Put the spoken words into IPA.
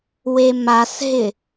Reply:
w e m a s ɦ ɪ

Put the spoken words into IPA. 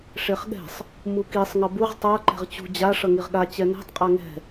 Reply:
ʂ e χ ɠ ɛ̤ sˤ | m u k i sˤ ŋ ʌ b u ʁ tˤ a ǃ ɛ̤ ʁ t͡ɕ ṳ d͡ʑ a ʂ ʌ ŋ i ʁ ɠ a t͡ɕ ɛ n ɛ̤ tˤ qʼ a ŋ ɛ̤

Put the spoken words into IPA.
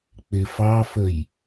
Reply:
k͡p ɪ f ɑ f ə j

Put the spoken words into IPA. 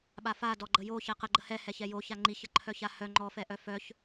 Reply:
ɓ a f a d ɔ ɡ͡ǃ ə j o ç ɛ q ə ɡ͡ǃ ə h ɛ h ɛ ç ɛ j o ç a ŋ͡ǃ i ç ə ǃʰ œ ç a h œ ŋ͡ǃ ɔ f ɛ ʔ œ f œ ç

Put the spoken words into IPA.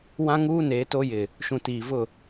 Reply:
w ã˦ ŋ uː˦ n e˨˦ t o˦ j ɪ˨ | ʃ ũ˨ t iː˨ v ʊ˦˨

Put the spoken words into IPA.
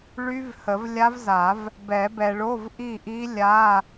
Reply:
ɭ y˦˥ v h ə˨˩˦ v lʲ a˦˥ v z a˨˩˦ v | b ɛ˨˩˦ b ɛ˨ ɭ o˧˥˧ v ʔ i˥˨ ʔ i˦˥ lʲ a˧˥˧

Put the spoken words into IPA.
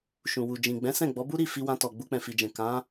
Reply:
ʃ ũ˨ w u˨ d͡ʒ ĩ˨ ɡ͡b ɛ̃˨˦ s ɛ̃˦˨ ɡ͡b ɔ˨˦ b u˦ ɾ i˦˨ f i˧ w ã˧ t ɔ˨ ɡ͡b u˧ k͡p ɛ̃˨ f i˨ d͡ʒ ɛ̃˨ k ã˨˦

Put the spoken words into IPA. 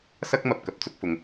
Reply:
s ɐ˥ k̚ m ɐ˨ p̚ k ɐ˨˥ p̚ t͡s ʊ˧ k̚ f ʊ˨˧ ŋ

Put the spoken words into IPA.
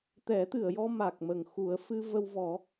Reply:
t̪ ɛ˨˩˦ t̪ ɨ˨˩˨ ə̯ j ɔ˧ m a˨˩ k̚ m ə˨˩ ŋ x u˨˩˦ ə̯ f ɨ˧ v ə˧ w v ɔ˨˩˦

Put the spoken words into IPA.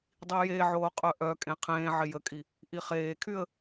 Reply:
dˤ i j e ʕ oː qʼ œ ʔ œ kʼ ẽ qʰ ẽː ʕ ɪ j ə kʼ i | ʔ i χ eː kʰ y ə̯

